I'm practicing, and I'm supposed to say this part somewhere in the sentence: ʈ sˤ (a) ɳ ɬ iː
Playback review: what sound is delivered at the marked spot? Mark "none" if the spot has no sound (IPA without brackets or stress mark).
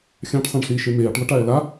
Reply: ã